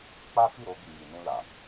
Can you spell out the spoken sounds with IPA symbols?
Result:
k͡p a˦ f i˦˨ ɾ o˧ ɡ i˨ j i˨ n ũ˧ l a˨

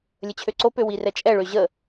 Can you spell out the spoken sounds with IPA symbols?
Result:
lʲ ə t͡ɕʰ ø ǀ o p ø w i r ɛ t͡ʃʼ ɛ ɭ ø ʑ ə

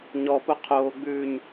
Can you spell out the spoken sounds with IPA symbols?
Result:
ɲ ɔ p o qʰ oː ɡ͡b ʉː ɲ

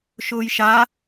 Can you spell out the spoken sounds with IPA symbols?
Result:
ʃ ʊː j ʃ a

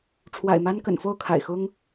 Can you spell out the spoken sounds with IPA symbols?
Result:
ʈ͡ʂʰ w a̰˨˩ ɪ̯ m a˦ n k ə̰˨˩ n f o˥˨ ʊ̯ kʰ a̰˨˩ ɪ̯ x ʊ˦ ŋ

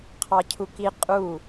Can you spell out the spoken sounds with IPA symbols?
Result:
qʰ ɑ cʰ u k i qʼ u

